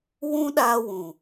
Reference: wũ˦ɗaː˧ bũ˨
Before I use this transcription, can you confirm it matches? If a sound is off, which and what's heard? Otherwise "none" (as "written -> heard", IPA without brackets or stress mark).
b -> w